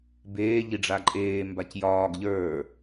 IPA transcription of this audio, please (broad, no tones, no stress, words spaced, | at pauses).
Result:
beːʎiɖ͡ʐa ǃʼeːmbac jɒːɡ ʎə˞